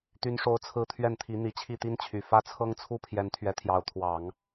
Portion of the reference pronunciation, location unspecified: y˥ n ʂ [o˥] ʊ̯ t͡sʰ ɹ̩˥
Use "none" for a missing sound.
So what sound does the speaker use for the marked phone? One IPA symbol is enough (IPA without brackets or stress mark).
o˥